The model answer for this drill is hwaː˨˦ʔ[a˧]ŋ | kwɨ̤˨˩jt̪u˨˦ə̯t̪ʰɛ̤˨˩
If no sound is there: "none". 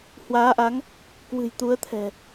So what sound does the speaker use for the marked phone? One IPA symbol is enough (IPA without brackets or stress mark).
a˨˦